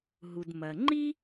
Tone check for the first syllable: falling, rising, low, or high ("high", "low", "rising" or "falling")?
low